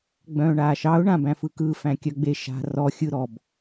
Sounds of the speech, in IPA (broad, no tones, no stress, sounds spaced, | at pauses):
ɡ͡b œ̃ː ɳ aː ʃ ɑ ʊ̯ ɳ ã b æ̃ f ɯ k ɯ f æ̃ kʲ œ ɡ͡b e ʃ a̤ r ɔ xʲ ɯ ɾ ɔ b